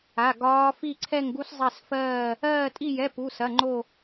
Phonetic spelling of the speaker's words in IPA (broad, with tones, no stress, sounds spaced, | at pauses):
a˧˥˧ ɡ ɒː˦˥ f i˥˧ ǀʰ ɛ˥˧ ŋ ɡ u˦˥ s zˤ ɛ˥˧ s f ɜː˥˧ | ɜː˥˧ tʼ i˥˧ j ɛ˧˥˧ p u˧˥˧ s ɐ˧˥˧ ŋ͡ǃ o˥˧